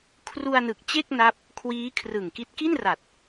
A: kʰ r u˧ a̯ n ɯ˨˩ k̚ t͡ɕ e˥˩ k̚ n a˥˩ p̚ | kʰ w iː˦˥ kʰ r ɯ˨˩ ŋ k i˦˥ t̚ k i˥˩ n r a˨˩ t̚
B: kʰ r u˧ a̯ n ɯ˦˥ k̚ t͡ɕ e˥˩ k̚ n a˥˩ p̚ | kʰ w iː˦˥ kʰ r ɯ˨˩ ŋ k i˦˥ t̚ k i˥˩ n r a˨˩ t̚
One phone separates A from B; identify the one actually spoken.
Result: A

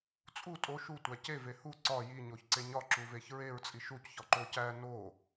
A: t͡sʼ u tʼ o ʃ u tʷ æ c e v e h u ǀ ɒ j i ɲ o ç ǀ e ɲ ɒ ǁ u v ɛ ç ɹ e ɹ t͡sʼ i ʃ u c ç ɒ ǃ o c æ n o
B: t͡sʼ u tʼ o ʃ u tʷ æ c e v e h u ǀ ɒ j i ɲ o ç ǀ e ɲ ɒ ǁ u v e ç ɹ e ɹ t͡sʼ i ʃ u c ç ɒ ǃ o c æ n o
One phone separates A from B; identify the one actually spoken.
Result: B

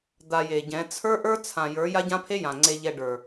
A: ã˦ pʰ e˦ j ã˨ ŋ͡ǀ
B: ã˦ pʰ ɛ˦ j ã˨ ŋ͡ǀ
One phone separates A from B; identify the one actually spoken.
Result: A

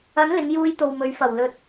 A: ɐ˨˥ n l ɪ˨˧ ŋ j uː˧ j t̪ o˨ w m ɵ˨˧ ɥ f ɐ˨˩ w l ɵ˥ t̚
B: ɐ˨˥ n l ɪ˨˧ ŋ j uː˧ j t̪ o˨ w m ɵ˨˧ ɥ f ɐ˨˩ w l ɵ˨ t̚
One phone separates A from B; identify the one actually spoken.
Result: B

